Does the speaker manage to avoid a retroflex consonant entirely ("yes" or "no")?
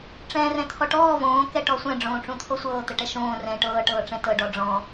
no